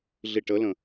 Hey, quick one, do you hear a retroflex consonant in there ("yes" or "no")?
yes